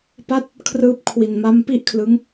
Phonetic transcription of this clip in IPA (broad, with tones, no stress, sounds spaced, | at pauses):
p a˥˩ t̚ | kʰ r ɯː˦˥ p̚ kʰ w i˨˩ n m a˦˥ m p i˥˩ ʔ kʰ l ɯ˦˥ ŋ